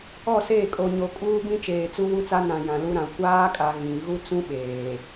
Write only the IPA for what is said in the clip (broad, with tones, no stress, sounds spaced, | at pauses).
ɔ˦˨ s eː˦˨ kʼ o˨ ɲ o˨ kʼ uː˦ b ĩ˦ t͡ʃ eː˨ t͡s u˦ w u˦ t͡s a˦ n ã˨ j ã˨ l u˦ ɾ ã˨ kʷ aː˦ kʼ a˨ ɣ ĩ˨ ɣ u˦ t͡s ũ˦ ɓ eː˨